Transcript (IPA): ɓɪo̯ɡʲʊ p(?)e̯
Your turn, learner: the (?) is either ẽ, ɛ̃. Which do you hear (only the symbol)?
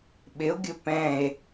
ɛ̃